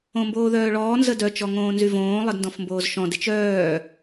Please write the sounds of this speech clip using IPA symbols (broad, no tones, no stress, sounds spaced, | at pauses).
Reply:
õ m b oː ð œː ɭ ɔː n z ə d œ t͡ʃ ɔ ŋ õː n z y v õː lˠ ə d n d ɔ̃ f m b oː z ʃ ɔ̃ d ɪ t͡ʃ œː